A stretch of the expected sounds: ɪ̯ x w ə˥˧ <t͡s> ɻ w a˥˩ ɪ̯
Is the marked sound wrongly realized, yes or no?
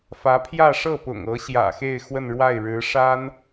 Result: yes